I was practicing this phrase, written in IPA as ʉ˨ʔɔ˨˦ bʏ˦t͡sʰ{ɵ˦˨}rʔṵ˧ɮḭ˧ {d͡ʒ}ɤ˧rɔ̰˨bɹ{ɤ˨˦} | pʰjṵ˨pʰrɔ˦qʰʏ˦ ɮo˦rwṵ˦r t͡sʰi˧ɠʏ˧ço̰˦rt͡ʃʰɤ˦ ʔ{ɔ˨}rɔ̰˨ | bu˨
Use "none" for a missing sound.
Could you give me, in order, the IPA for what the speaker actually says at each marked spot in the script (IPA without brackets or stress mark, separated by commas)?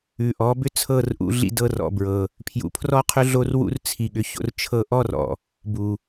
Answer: ɤ˦˨, d, ɤ˨, ɔ˦